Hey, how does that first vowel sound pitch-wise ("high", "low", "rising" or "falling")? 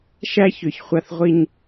high